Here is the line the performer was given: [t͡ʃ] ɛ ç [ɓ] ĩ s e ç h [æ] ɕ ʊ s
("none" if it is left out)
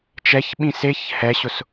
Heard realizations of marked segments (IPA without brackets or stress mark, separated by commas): t͡ʃ, ɓ, ɛ